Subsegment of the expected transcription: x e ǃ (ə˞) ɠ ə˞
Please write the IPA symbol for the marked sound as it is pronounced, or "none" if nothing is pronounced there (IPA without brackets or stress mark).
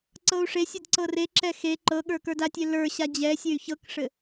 ɤ